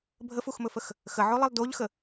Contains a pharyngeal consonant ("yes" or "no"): yes